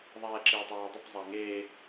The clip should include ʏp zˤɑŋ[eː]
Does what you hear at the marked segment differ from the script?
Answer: no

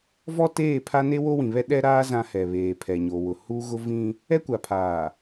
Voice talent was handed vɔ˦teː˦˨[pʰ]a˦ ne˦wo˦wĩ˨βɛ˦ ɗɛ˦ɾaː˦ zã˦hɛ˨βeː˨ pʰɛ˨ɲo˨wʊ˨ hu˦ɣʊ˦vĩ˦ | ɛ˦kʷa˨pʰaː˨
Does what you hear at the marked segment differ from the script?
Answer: no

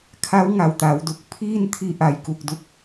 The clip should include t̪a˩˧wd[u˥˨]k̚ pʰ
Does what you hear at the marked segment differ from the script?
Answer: yes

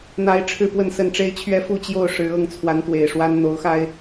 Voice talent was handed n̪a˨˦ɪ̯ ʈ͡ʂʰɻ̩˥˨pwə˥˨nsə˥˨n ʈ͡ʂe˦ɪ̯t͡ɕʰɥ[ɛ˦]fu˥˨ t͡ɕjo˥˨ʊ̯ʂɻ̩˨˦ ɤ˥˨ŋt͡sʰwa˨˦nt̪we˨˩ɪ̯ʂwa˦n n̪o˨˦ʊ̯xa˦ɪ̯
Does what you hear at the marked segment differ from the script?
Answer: no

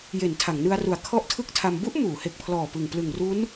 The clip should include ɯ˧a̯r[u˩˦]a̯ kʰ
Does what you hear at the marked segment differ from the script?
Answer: yes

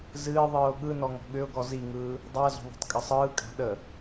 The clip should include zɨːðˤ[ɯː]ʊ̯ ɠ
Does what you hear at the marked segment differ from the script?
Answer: no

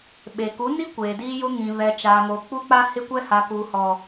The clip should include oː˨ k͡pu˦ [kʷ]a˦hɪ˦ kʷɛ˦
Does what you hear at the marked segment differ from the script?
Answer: yes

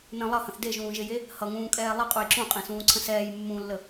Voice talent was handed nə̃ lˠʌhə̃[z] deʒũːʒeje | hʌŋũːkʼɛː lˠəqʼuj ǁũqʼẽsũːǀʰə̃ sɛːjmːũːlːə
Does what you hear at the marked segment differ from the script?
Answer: yes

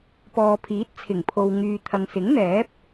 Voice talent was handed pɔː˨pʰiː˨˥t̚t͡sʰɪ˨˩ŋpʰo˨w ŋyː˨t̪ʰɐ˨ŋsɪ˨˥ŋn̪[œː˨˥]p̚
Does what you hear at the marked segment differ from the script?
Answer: yes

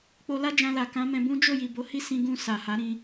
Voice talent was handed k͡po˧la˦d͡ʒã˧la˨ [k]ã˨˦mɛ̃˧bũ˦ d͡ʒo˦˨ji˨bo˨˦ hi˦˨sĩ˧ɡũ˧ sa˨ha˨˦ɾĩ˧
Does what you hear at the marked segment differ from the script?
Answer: no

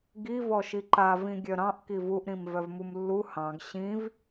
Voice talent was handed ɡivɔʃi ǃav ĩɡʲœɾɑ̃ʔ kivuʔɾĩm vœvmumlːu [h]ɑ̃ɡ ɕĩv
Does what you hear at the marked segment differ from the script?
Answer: no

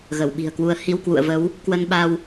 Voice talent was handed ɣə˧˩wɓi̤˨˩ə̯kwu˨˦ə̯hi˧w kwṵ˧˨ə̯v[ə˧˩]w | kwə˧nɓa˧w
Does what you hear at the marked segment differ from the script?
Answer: yes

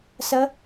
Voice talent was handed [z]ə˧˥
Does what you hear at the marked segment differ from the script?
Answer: yes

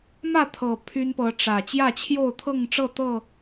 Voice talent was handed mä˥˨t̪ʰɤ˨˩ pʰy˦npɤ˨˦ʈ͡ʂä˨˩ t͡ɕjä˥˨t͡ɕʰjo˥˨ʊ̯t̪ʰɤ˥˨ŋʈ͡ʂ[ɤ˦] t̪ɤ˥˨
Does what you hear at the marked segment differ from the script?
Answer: yes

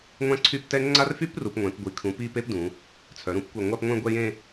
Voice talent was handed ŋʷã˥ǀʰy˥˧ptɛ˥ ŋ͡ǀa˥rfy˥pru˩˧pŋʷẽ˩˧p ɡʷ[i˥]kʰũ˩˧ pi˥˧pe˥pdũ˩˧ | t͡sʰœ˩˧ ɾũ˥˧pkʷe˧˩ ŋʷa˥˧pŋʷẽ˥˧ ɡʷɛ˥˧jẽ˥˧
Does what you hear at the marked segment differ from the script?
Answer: yes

